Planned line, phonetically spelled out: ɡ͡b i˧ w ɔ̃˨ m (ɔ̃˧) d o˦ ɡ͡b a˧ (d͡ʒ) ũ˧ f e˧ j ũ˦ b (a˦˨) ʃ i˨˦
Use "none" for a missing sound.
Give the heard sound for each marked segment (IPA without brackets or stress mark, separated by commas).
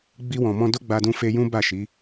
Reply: ɔ̃˧, d, a˦˨